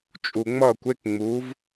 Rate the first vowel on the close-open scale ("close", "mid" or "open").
close